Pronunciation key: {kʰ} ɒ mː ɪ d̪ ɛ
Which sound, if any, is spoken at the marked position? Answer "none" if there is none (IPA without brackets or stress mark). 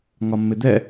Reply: ŋ